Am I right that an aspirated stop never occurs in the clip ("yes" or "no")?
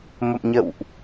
yes